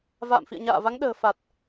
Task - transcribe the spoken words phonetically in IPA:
v a̰ː˧˨ m f ḭ˧˨ ə̯ ɲ a̰ː˧˨ v a˨˦ ŋ ɗ ə̤ː˨˩ f a˨˩ t̚

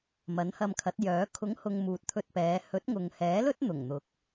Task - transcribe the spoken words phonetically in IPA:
m ɐ˨˥ n h ɐ˧ m kʰ ɐ˨˥ t̚ j œː˨˥ kʰ ʊ˨˥ ŋ h ʊ˨ ŋ m uː˨ t̚ t̪ʰ ɵ˧ t̚ p ɛː˨˧ h ɵ˨˥ t̚ ŋ ʊ˨ ŋ h ɛː˨˥ l ɵ˥ t̚ n̪ ʊ˨˩ ŋ n̪ ʊ˨˥ k̚

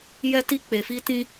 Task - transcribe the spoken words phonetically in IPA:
j ɛ˦ t i˦ k͡p e˨ f i˦ t ĩ˦

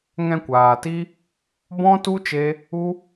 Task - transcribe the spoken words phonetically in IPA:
ŋ ɛ̃˧ kʷ aː˨ t i˦ | b ɔ̃˦ t u˦ t͡ʃ e˦ | u˦

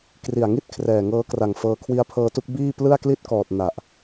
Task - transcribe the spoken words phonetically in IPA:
k r i˨˩ a̯ ŋ i˥˩ t̚ kʰ r ɛː˨˩ ŋ ɤː˦˥ k r a˨˩ ŋ f ɤː˧ kʰ w i˦˥ a̯ pʰ ɤː˦˥ t u˦˥ k̚ b iː˥˩ p l ɯ˥˩ a̯ k l i˥˩ t̚ k ɔː˨˩ t̚ n a˨˩ ʔ

